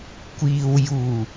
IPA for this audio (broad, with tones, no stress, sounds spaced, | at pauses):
kʷ iː˨ w j uː˨˩